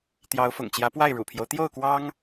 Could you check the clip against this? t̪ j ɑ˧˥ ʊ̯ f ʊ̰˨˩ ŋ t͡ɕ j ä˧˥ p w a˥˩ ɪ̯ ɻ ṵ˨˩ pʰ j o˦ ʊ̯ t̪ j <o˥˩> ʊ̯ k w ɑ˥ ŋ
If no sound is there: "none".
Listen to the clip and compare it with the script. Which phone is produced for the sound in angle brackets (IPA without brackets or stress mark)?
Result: o˥˩